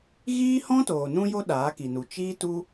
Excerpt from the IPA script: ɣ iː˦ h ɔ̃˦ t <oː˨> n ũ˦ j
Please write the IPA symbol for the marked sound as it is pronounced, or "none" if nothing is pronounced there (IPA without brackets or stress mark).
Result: oː˨